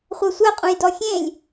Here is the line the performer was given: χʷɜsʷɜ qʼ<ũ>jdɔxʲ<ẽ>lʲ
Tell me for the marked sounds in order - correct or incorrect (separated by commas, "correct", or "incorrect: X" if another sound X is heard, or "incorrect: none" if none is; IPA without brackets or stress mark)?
correct, correct